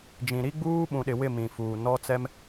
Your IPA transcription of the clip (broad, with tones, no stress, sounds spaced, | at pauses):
d͡ʒ ĩ˨ ɾ i˦ ɡ͡b uː˦ ɓ ũ˨ ɗ ɪ˨ w ɪ˦˨ m ĩ˨ f uː˨ n ɔ˦ t͡s ɛ˦ m